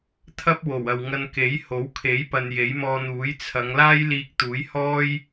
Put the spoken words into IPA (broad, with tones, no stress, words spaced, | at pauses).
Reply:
t̪ʰɐ˥p̚ wo˨˩w ɐ˨wŋɐ˧nke˨˥j ho˨˥w kʰe˨˥j pɐ˧n je˨˥jmɔː˧n̪uː˨˥j t͡sʰɐ˨˧ŋ laː˥jliː˧k̚ t̪uː˨˥jhɔː˥j